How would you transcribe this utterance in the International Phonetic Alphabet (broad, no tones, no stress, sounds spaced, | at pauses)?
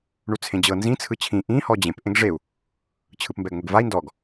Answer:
ɳ u t͡sʰ ẽ d͡ʑ ɤ n z ĩ t͡sʰ ɯ t͡ɕʰ ĩ ʔ ĩ h ɔ d͡ʑ ẽ p ʔ ẽ ɡ ʐ e u̯ | t͡ɕʰ ɯ p m b ɛ ɡ ŋʷ e ɡ v a i̯ n d ɔ ɡ